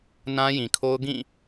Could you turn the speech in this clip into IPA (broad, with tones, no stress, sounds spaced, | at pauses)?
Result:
n ã˦ j ĩ˨ kʰ o˦ ʊ̯ ɡ ĩ˦˨